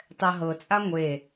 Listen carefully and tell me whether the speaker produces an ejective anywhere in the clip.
yes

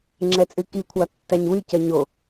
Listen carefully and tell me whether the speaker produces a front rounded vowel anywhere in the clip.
yes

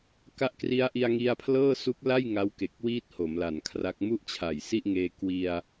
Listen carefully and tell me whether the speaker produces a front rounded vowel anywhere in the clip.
no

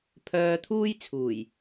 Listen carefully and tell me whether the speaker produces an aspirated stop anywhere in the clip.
yes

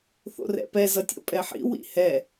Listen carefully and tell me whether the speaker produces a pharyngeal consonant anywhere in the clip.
yes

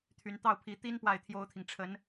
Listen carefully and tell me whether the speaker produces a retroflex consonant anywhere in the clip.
yes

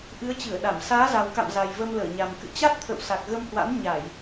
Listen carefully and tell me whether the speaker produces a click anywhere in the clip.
no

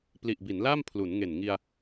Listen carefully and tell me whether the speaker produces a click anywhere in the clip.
no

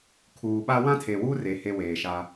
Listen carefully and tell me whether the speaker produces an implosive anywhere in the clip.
yes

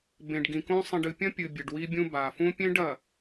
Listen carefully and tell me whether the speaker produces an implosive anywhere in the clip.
no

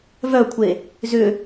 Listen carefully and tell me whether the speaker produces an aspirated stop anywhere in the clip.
yes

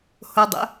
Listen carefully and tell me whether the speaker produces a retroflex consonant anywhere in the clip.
no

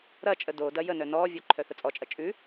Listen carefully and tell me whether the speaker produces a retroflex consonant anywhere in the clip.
no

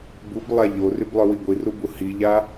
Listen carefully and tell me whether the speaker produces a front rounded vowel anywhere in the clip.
yes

